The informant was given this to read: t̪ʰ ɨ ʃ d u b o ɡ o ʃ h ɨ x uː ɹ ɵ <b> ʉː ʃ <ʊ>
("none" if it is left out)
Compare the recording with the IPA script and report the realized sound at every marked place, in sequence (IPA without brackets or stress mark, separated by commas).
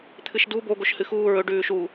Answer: ɖ, u